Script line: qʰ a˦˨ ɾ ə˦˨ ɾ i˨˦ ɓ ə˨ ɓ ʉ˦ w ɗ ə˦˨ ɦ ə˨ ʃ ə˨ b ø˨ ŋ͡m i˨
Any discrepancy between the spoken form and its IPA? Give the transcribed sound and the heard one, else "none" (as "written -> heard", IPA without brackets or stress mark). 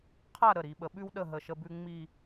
ø˨ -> ʉ˨